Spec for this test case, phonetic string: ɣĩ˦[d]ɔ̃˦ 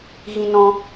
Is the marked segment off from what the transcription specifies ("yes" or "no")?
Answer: yes